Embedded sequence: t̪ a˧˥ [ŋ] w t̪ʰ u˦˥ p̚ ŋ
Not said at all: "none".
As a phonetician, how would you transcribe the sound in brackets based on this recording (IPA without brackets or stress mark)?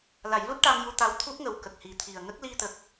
none